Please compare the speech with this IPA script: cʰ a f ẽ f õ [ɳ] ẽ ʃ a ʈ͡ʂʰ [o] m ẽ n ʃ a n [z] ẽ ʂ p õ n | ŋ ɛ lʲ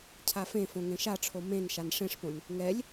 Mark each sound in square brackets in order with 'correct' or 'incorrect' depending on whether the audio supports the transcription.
incorrect: ŋ, correct, incorrect: ʂ

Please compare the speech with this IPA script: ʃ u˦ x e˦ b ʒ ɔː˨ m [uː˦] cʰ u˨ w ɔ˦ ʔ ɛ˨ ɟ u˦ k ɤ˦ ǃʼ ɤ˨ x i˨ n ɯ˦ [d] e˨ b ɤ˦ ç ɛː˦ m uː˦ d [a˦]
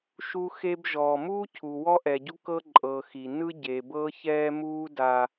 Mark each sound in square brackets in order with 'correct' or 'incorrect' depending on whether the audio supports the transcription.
correct, incorrect: ɟ, correct

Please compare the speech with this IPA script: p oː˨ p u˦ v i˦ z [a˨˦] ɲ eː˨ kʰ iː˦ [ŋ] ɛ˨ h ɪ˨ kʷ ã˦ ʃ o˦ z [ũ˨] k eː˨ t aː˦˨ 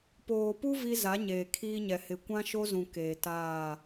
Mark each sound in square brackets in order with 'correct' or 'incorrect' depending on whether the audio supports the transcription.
correct, incorrect: ɲ, correct

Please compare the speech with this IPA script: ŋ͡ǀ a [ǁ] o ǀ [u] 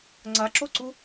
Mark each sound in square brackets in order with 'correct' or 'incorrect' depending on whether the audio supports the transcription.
correct, correct

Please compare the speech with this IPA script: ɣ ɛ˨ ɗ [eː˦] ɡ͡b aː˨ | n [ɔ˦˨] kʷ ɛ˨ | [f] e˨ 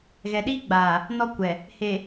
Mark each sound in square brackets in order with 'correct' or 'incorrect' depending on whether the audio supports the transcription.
incorrect: iː˦, incorrect: ɔ˦, incorrect: h

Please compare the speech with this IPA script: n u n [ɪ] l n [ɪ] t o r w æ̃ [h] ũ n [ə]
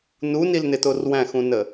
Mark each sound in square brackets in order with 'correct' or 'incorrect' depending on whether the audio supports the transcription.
incorrect: i, correct, incorrect: x, correct

